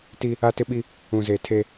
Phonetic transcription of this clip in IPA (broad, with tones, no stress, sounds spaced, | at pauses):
t i˦ | a˦ t ɪ˦ ɓ i˦ | ũ˨ z e˨ tʰ e˦